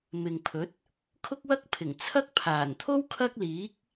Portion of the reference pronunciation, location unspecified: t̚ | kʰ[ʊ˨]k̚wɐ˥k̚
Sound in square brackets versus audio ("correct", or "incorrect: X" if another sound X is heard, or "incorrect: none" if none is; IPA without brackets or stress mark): incorrect: ʊ˥